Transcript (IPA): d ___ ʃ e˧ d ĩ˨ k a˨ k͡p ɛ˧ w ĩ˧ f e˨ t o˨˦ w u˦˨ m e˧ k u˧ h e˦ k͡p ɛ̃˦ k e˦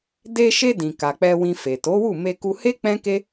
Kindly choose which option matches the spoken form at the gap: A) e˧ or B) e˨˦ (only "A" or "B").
A